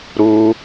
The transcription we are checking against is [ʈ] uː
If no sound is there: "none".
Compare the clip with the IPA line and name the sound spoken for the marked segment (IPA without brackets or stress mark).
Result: ɾ